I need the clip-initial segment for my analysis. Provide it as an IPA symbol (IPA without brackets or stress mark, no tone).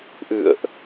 ʔ